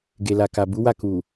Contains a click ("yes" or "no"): no